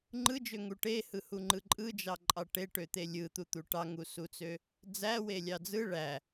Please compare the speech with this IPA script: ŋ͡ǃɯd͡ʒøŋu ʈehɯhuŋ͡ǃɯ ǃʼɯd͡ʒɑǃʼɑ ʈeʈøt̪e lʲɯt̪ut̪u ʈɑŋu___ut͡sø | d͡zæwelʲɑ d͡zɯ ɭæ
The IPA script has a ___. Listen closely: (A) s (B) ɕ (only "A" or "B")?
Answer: A